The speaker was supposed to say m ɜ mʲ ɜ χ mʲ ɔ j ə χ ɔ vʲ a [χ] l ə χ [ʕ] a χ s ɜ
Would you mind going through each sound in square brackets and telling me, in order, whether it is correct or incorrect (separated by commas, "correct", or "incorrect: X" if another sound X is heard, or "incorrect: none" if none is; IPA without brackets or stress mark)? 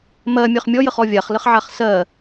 correct, correct